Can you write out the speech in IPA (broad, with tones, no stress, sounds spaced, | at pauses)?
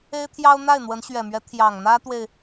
e˥ ɪ̯ t̪ʰ j ɑ˥ ʊ̯ n̪ a˥˩ ɪ̯ n̪ w ə˧˥ n ɕ ɥ ɛ˨˩ m ɥ ɛ˧˥ t̪ʰ j ɑ˨˩ ŋ n̪ ä˥ t̪ w e˨ ɪ̯